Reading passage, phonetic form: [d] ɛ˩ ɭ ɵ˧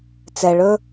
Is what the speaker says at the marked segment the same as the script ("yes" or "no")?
no